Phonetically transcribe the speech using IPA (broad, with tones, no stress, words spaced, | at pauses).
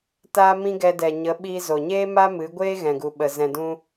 taː˦mĩ˦ ɡɛ˧ dɛ˨ɲə˨˦ ɓiː˧zo˨ɲeː˦ma˦ mɨ˨˦ɡʷeː˦ ɣɛ̃˨ɡu˨ɓə˨ zɛ̃˨dũ˧